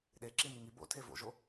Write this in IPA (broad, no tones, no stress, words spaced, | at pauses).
ɗeǁi niŋi bo̰ tʰevo̰ʒo